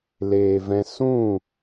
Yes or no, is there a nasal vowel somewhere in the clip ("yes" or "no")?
yes